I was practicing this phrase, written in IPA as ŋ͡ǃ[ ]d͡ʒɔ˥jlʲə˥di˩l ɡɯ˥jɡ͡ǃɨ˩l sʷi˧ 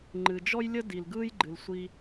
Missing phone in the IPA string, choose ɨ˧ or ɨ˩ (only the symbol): ɨ˩